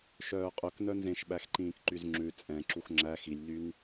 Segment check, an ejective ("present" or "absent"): present